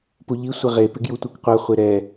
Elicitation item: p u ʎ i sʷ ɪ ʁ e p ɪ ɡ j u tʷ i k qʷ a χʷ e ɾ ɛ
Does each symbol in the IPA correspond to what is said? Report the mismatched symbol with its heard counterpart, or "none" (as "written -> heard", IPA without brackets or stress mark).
none